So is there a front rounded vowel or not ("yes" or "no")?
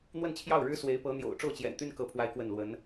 yes